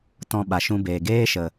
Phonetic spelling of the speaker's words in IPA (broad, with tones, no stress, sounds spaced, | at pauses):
t ɔ̃˧ ɓ a˨ ʃ ũ˧ b eː˨ ɡ eː˦ ʃ ə˨